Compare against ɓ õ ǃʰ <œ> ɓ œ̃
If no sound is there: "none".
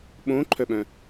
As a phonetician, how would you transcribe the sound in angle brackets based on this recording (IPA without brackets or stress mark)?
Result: œ